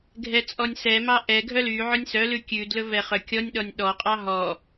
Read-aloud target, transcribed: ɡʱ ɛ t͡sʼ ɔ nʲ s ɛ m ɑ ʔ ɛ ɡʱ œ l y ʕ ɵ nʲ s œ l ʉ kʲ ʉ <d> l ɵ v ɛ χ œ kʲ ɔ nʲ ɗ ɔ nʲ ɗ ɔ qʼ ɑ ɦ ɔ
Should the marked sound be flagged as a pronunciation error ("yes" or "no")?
no